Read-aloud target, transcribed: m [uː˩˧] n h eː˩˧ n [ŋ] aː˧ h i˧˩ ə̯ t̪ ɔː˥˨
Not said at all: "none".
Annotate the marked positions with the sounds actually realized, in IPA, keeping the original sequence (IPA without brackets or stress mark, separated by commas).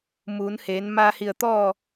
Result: uː˩˧, m